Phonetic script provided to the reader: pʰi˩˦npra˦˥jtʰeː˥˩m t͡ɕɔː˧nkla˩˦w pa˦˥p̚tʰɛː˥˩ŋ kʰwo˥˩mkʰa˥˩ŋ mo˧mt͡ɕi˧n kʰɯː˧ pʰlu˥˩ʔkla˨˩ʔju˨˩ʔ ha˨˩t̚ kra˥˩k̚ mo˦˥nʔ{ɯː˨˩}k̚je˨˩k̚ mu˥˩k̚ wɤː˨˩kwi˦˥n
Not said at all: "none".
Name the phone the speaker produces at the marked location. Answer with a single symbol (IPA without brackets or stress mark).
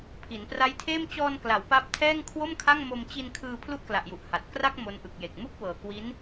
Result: ɯ˨˩